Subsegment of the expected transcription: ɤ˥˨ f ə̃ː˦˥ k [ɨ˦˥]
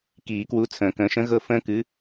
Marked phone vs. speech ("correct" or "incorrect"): incorrect